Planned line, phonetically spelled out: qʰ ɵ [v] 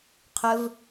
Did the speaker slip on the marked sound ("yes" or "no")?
no